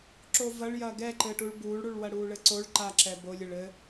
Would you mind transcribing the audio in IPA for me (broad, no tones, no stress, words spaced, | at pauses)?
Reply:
ǁovɐɭ jɐːɡɛǃɘːʈuɭ buːɭɽuɭ wɐɽuːɭɘǀoɭ ǃaǁɛ bolʲɘɭ ɘ